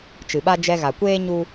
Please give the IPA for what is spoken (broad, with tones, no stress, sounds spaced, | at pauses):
t͡ʃ ɨ˨ ɓ a˦ d͡ʒ ɛ˧ ɣ a˨ kʷ eː˦ ɲ u˦